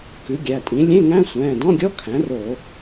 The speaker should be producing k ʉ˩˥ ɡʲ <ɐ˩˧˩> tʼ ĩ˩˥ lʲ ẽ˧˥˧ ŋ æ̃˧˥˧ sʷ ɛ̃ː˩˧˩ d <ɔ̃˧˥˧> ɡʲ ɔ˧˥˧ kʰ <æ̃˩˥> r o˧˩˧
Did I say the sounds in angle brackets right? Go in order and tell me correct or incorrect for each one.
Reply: incorrect, correct, correct

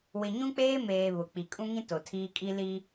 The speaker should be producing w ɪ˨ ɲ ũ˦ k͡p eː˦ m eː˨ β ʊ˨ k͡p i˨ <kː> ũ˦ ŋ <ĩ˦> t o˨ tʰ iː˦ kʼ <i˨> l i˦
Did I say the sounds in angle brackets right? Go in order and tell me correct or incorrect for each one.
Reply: incorrect, correct, incorrect

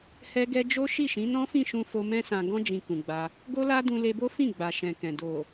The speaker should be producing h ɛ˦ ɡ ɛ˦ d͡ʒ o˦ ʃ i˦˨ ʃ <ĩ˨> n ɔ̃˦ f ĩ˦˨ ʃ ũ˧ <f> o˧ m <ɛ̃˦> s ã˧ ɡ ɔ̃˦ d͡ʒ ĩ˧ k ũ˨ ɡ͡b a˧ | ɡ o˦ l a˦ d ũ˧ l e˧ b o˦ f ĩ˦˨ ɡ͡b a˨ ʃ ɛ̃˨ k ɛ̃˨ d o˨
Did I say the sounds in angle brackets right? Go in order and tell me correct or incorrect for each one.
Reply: incorrect, correct, correct

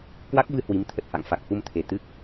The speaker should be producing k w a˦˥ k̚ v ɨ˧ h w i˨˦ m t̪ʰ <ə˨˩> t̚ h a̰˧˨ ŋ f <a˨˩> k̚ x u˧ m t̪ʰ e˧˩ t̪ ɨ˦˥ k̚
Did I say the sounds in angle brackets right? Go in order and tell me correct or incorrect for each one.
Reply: correct, correct

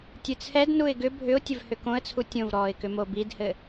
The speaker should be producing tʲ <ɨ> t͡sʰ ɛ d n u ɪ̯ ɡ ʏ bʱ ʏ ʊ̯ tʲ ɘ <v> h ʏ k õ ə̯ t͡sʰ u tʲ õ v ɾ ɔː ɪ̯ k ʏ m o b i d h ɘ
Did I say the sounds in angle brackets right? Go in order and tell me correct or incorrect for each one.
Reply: correct, correct

